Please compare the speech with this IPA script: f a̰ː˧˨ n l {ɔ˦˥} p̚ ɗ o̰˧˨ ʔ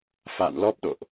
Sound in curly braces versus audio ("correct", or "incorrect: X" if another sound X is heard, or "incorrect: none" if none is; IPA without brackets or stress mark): correct